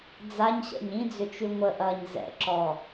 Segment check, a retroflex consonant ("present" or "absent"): absent